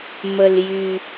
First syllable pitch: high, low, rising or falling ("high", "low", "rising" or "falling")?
low